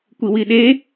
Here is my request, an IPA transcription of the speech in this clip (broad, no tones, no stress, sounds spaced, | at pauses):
kʷ i w i ɗ e